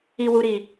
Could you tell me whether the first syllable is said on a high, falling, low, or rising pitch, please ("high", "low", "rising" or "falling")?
low